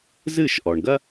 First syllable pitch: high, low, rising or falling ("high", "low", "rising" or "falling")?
falling